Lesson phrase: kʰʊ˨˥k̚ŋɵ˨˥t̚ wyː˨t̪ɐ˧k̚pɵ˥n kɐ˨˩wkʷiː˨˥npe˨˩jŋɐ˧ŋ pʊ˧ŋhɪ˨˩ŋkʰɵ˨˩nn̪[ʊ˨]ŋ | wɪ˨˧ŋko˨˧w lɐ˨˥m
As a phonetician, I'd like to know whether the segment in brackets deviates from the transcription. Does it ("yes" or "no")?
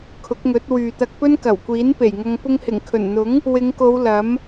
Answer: yes